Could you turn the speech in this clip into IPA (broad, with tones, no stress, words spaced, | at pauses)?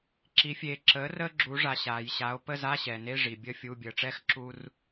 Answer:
ǁi˩˧fʲeː˩˧ ǁəː˩˥ rəː˧ɡ͡ǁuː˩˧ʐa˩ ɕaː˩jɕa˩˧o̯ pə˧˥˧za˧˥˧ɕɛ˩ne˧˥˧ ʐi˩ bʲəː˧fʲuː˩˧˩bʲəː˩˧ʈ͡ʂɛ˧˥˧x ǁu˧r